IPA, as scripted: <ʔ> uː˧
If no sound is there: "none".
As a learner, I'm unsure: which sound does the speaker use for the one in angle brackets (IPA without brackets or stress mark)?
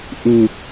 ʔ